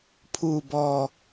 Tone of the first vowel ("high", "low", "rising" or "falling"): low